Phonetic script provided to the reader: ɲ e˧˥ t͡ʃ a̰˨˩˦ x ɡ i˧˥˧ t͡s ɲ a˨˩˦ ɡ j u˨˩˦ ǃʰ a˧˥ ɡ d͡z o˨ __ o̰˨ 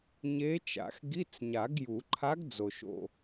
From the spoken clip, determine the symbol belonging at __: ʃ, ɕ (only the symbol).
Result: ʃ